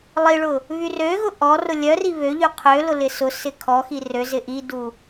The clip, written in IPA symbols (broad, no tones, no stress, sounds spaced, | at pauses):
lˠ i ɭ ʊ | β y r ø ɣ ʊ ʔ ɔ r ʊ lʲ œ r i β ø ʎ y qʰ ø l ʊ l ɪ s ʊ s ɪ kʰ ɔ x i r ø z ɪ ʔ i d u